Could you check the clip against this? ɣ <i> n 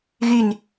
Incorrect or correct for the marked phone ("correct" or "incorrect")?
incorrect